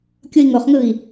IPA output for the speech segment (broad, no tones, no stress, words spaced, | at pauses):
kʲoi̯ŋoχŋɯi̯